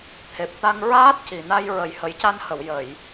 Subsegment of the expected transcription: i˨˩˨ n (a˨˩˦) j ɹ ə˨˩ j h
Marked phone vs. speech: incorrect: a˧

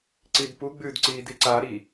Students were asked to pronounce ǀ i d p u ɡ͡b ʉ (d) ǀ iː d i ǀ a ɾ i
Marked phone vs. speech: correct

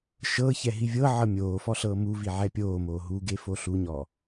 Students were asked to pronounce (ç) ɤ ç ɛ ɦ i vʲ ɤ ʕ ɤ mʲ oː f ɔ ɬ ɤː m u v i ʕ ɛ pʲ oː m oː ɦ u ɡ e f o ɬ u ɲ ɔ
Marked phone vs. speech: incorrect: ʃ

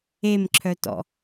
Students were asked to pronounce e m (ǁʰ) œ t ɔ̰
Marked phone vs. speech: correct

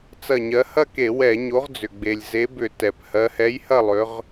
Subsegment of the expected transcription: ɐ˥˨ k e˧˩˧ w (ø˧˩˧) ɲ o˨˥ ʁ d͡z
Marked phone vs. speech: incorrect: ɛ˧˩˧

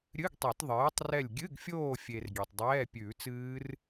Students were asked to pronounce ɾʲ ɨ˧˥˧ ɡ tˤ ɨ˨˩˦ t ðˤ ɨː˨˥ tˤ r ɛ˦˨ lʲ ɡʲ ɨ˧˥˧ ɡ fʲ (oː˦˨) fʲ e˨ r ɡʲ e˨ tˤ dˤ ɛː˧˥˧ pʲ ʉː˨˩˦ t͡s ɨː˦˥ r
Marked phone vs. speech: correct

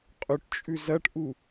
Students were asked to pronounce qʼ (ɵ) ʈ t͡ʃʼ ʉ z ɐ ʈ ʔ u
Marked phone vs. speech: correct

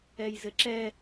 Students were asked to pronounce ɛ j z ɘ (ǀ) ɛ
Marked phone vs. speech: incorrect: ǁ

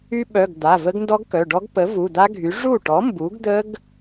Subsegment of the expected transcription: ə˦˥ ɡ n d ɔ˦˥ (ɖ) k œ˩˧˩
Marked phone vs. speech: incorrect: ɡ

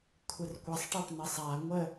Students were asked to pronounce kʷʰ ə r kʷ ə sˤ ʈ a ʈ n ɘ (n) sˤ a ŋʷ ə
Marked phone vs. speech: incorrect: none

